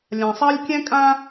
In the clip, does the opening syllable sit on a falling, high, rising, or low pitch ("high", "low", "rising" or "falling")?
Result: low